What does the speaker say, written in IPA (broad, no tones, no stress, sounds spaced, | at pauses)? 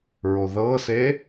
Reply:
ɹ o ð ɤ s e